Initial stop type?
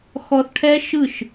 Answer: aspirated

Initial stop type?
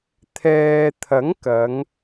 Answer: aspirated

